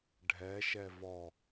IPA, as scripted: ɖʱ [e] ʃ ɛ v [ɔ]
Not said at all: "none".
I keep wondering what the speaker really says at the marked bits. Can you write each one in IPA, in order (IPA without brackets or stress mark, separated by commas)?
ɛ, ɔ